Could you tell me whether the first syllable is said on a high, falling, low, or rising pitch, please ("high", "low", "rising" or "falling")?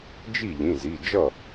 falling